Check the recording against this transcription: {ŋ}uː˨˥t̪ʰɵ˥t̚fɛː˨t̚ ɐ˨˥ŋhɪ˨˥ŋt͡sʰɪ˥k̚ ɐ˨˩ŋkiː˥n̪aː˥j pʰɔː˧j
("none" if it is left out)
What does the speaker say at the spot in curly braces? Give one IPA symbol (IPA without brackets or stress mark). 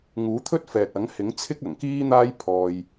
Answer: ŋ